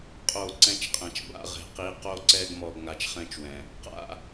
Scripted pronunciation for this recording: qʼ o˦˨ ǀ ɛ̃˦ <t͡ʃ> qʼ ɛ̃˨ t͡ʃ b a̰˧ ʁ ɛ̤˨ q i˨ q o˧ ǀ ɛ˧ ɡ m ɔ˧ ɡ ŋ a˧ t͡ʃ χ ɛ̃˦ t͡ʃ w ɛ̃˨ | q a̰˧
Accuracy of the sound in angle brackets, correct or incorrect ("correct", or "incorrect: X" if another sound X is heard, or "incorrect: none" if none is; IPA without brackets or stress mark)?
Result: correct